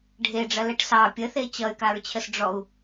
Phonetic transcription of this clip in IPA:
ɖʱ e ɖ͡ʐ ɐ l ɛ ʈ s ɑ pʲ ə θ e t͡ɕ ʌ y̯ k a ɹ t͡ɕʰ ə s ɖ͡ʐ ɔ u̯

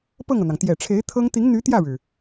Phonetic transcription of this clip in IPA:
p ɤ˥˩ ŋ ɤ˩ n̪ ɑ˩ ŋ t̪ j ɛ˨˩ ʈ͡ʂʰ e˧˥ ɪ̯ t̪ʰ ɤ˥ ŋ t̪ i˧˥ ŋ n̪ y˧˥ t̪ j ä˥˩ ɻ ɻ̩˩

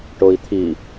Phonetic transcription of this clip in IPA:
ʈ o i̯ t̪ʰ i

